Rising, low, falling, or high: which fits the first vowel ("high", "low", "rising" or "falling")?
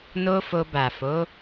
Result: high